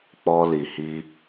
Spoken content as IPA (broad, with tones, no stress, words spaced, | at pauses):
k͡pɔ˧li˨hi˧